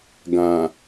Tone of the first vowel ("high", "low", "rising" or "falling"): low